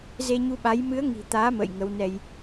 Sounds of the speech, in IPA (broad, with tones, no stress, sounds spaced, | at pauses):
z e˧ ɲ u˧ ɓ a˨˦ j m ɨ˨˦ ə̯ ŋ i̤˨˩ t̪ aː˨˦ m ə̰ː˧˨ j ŋ ə˨˦ w n ɛ˧ j